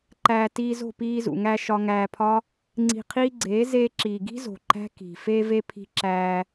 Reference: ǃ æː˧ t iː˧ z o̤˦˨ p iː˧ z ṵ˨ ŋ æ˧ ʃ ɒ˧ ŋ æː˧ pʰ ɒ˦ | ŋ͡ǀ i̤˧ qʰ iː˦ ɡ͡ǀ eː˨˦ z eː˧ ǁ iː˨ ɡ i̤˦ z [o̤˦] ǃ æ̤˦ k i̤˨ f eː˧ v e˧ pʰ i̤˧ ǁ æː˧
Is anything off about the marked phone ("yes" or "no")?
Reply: yes